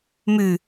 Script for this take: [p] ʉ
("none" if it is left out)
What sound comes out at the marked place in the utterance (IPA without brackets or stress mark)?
m